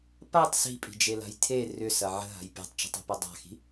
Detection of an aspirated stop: present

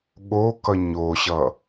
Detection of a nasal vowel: absent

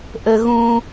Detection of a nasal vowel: present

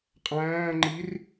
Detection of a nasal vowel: present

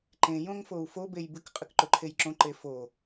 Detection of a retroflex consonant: absent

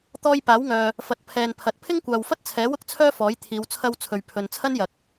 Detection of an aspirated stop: present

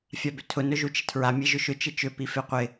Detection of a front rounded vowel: present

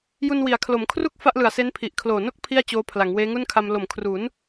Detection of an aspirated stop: present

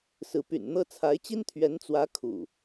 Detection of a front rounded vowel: present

